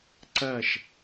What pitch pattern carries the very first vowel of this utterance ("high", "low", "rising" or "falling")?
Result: falling